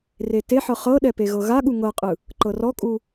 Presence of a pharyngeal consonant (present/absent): present